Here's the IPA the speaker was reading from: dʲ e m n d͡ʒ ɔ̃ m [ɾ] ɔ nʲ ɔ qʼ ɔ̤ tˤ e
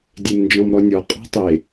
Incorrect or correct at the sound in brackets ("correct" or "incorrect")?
correct